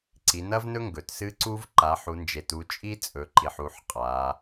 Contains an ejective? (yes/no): yes